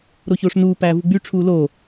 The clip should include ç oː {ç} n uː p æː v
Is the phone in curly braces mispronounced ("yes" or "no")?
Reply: yes